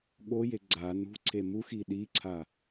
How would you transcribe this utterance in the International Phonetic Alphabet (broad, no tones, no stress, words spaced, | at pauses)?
ɠoje ɡ͡ǀa nṳǀʰe muxi ɗiǀʰa